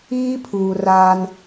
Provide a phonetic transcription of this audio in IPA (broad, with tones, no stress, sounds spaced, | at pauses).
iː˦ pʰ uː˨ r aː˦ n